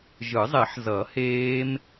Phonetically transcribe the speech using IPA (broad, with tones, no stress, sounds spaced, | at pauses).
ʒ ɯ˨˩˦ zˤ e˨˩˦ ħ z ʌ˨˩˦ h eː˦˥ m